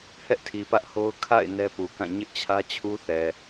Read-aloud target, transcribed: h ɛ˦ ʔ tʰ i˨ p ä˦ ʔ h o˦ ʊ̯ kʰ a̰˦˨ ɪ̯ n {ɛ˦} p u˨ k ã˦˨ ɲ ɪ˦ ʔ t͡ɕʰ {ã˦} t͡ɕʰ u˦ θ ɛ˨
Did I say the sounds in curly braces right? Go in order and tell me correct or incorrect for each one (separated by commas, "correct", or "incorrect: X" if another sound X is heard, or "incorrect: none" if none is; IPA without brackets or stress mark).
correct, incorrect: ä˦